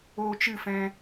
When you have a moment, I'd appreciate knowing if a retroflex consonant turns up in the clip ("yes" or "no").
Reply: no